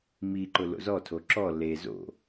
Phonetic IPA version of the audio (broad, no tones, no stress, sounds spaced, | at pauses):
m i ǃ ʊ l o̰ z ɔ tʰ o ǁ ɔ l e z o̰